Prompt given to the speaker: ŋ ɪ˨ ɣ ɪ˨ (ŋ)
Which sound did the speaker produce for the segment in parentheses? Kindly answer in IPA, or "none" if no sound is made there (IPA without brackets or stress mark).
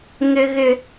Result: none